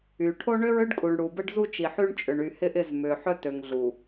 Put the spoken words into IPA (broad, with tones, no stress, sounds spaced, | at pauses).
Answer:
y˨ ʈʰ o˦ ɳ ø˦ ɹ ʏ˦ ɖ kʼ u˨ ɳ ɽ u˨ b ə˦ ɖ z u˦ t͡ʃ i˨ ħ y˦ ɳ t͡ʃʼ ʏ˨ ɳ y˨ h ɪ˦ ʔ ɪ˦˨ z m ʏ˨ ħ œ˦ t ø˨ ŋ ɮ u˨